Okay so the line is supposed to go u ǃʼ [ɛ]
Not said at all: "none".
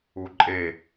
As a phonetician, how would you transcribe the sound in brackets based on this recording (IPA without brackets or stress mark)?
e